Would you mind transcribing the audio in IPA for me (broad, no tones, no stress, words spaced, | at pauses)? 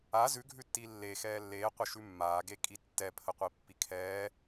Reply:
a zʉɡʱʉtːi lːe xɛːlːeːqʷə ʃʉmːaːɡe kʼitːɛ pʰəqʷipːikʰɛː